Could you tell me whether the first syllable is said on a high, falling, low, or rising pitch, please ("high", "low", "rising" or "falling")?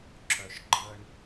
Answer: low